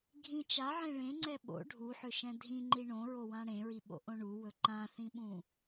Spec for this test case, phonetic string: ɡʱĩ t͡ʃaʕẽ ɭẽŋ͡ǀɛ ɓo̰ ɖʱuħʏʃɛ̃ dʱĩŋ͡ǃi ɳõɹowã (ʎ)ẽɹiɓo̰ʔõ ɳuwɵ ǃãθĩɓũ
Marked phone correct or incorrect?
incorrect